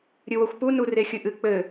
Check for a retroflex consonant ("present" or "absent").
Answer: absent